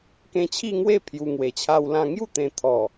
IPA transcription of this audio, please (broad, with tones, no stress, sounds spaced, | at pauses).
k ẽ˧ t͡ɕʰ i˥˧ ŋ w e˥˧ pʰ j u˧ ŋ w e˨˩ t͡ɕʰ a˦ w l ã˦ ŋ j u˥˧ t̪ ẽ˨˩ t̪ʰ ɔ˨˩